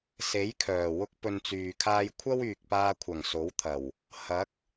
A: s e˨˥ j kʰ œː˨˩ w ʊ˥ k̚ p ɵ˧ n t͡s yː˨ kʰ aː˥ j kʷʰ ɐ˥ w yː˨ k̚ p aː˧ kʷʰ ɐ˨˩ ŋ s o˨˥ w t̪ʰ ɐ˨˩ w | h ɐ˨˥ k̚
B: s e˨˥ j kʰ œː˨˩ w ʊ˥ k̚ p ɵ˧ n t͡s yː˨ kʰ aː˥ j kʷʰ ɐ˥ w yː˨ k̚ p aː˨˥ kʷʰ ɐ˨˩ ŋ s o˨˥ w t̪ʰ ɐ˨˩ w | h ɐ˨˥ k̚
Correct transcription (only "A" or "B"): A